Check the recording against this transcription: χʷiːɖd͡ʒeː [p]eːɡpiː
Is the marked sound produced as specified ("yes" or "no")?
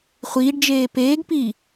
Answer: yes